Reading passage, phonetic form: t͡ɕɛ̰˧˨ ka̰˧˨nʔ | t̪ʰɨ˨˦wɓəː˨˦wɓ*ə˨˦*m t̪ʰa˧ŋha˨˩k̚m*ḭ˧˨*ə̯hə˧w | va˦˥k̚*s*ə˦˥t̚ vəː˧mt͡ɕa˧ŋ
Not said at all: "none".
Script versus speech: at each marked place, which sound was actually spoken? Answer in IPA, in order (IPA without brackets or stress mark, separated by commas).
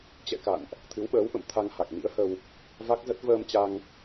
ə̰˧˨, ḭ˧˥, z